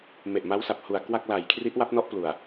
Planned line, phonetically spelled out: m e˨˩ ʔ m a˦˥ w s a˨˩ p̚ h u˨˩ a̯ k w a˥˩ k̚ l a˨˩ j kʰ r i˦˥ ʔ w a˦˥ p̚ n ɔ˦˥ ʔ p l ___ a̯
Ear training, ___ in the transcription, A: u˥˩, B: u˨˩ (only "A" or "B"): B